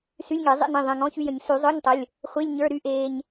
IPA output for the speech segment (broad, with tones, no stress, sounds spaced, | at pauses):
s y˧˥˧ lʲ ŋ e˨˩˦ zˤ ḛ˧˥˧ n ĩ˩˧˩ ðˤ ẽ˩˧˩ ŋ ɔ̃˧˥˧ ç y˧ j ə̃˨˩˦ ɲ s y˨˩˦ zˤ œ˧˥˧ ɲ tˤ ə˩˧˩ lʲ | χʷ i˧˥˧ lʲ ɲ ə˞˧˥˧ ɾ y˧˥˧ ʔ eː˧ ɲ